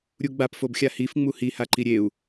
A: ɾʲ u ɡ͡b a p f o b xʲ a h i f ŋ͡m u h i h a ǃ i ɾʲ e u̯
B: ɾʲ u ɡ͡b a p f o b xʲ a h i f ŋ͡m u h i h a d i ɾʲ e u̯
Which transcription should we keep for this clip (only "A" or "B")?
A